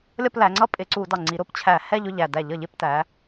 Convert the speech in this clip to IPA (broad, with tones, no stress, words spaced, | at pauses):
lʲʌ˥˧plæ˩˧ŋ͡ǀʌ˥˧ pʼɪ˧˩˧ǀu˧˩˧dɑ˨˩ŋ͡ǀi˩˧ ɾʊ˧˩˧pt͡ɕʰæ˧˩˧ hɛ˥˧ʎ ʊ˥˧ʎæ˨˩dæ˧˩˧ʎ ʌ˧˩˧ʎɪ˧˩˧ptæ˩˧